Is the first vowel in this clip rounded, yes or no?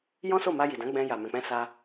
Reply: yes